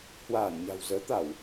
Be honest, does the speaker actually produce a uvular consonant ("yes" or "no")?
no